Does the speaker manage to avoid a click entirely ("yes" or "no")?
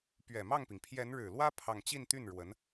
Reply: yes